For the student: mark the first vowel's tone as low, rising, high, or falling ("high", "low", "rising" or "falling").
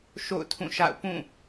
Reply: falling